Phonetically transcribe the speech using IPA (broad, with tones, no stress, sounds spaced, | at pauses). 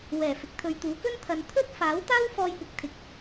w ɛː˨˩ f ɪ˨ k̚ t̪ʰ ɵ˨ ɥ t̪ uː˨˥ k ɵ˥ n t̪ʰ ɐ˧ n t̪ʰ ɵ˥ t̚ f aː˨˥ w t̪ aː˥ w f ɔː˧ j p ɪ˨ k̚ t̪ʰ ɪ˨ k̚